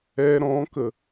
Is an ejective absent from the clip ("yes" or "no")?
yes